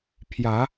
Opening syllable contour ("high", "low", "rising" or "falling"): rising